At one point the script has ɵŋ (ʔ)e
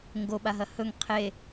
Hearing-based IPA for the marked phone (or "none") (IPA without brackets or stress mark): qʰ